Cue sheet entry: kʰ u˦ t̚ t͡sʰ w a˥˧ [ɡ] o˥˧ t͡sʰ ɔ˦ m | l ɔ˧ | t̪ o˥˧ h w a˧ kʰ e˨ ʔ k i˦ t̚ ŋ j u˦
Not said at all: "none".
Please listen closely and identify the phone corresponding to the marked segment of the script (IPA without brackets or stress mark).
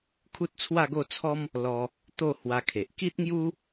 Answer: ɡ